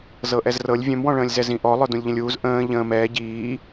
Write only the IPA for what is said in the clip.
zɤʔɛzrɤlʲ vʲœ̃mwɔ̃ɭə̃ːlʲ zɛzĩʔɔ lˠœdũlʲʎə̃lʲuːz ʔə̃ː ʎə̃ːm ɛː ɟiː

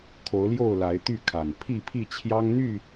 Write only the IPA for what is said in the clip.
kʰo˨˦ʊ̯ljo˥˨ʊ̯la˨˦ɪ̯ t̪y˥˨kʰa˨˩n pʰi˥˨pʰi˥˨t͡ɕʰjɑ˦ŋ n̪y˥˨

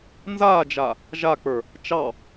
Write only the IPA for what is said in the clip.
nzaːd͡ʒa | ʒak͡pə˞ | t͡ʃɑ

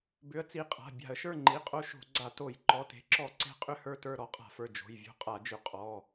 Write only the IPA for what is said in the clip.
bʏ˨˥ə̯t͡si˩˧˩ qʼa̤˩˧˩ bʲa̤˧˩˧ə̯ʃə˞˦˨ ŋ͡ǃi˩˧˩qʼo˦ʃo̤˧˩˧ ɡ͡ǀa˧˩˧to˧˩˧j ǃɔ˩˧˩te̤˨˥ǁɔ˧˩˧ ǀe̤˦ qʼʏ˦˨hə˞˦˨tə˞˦˨ ɾɔ˨˥qʼa̤˧˩˧fə˞˩˧˩ d͡ʒo̤˩˧˩jvʲo̤˦˨qʼa˧˩˧d͡ʒʏ˧˩˧ qʼɔ˩˧˩

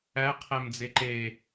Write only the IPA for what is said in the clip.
æqʰæmd͡ze ǃe

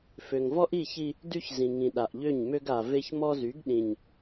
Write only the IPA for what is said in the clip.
fø˨ŋvɔ˦ʔi˦˨çi˦ | dy˦çzĩ˨ŋĩ˨ ɗa˨ʔʎø˦˨ɲmø˦ɡ a˨ ve˦çmɔ˦zy˨˦ɡ ɗĩ˨ɲ

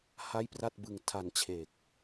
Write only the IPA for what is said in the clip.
ha˥˩jpra˥˩t̚bɯ˧ŋ tʰa˧nt͡ɕʰe˨˩k̚

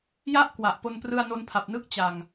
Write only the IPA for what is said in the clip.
ja˥˩ʔ kwa˨˩ʔpo˧n prɯ˧a̯no˧npʰa˨˩p̚ nɯ˥˩k̚t͡ɕa˨˩ŋ

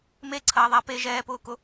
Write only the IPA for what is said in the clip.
meǀʰɐːðˤa pe ʒɛːpʊːkʊ

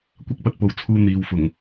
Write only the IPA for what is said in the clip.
kʷɐ˥k̚pɐ˧t̚po˨˧wt͡sʰuː˧ n̪iː˨˧wfʊ˨˩ŋ

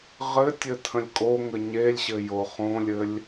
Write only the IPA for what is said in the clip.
ʁɘtʲɘ tʰə̃lʲkʼoŋə ɲelʲɕɘ joχõlʲɘlʲ

